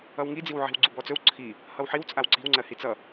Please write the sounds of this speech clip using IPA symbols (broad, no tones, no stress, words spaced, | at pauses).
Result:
ʌwŋid͡ziwʕi̤w ɡ͡ǀubɔt͡sɵw ǀʰi | hʌwħiw t͡sʼawǀi̤wŋ͡ǀɜ hit͡sʌ